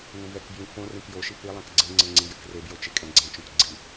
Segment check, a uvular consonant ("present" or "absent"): absent